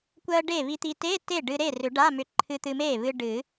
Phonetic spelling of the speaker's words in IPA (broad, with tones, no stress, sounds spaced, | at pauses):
kʷ ɜ˧ ɖ e˥˩ β i˧ t̪ i˧ t e˧˥˧ t e˥˩ ɖ ɨ˧ ɾ e˥˩ r ʏ˨˩˦ ɖ a˧˥˧ m ʏ˧ ǃʰ ɨ˧ t̪ ɨ˧ m e˥˩ β ɨ˧ ɖ ɨ˨˩˦